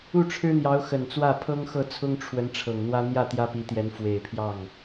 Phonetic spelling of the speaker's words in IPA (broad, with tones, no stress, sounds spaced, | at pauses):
u˥˩ ʈ͡ʂʰ ɻ̩˥ n̪ j ɑ˧˥ ʊ̯ x ə˨˩ n t͡s w ä˥˩ pʰ ɤ˥ ŋ x ɤ˥˩ t͡sʰ ʊ˥ ŋ ʈ͡ʂʰ w ə˧˥ n ʈ͡ʂʰ ɤ˨˩ ŋ n̪ w ä˥ n̪ j ä˥˩ t̪ j ä˥ p i˧˥ t̪ j ɛ˧˥ n f w e˨˩ ɪ̯ pʰ j ɑ˥˩ ŋ